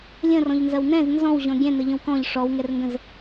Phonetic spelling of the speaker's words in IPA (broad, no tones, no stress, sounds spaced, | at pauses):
lʲ ə̃ r ɔ̃ ʎ n z ɐ w n ɛ̃ z n z ɔ̃ w ʑ ɔ̃ ɡʲ ɛ̃ n ə ʎ ə̃ w k ɔ̃ ʎ ʂ ɔ w ŋ ɛ r ŋ ɡ ə̃ z